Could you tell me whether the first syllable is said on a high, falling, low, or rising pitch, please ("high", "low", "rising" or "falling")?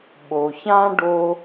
low